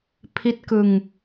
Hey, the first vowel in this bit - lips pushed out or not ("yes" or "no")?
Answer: no